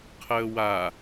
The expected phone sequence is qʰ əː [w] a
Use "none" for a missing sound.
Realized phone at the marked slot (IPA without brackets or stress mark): w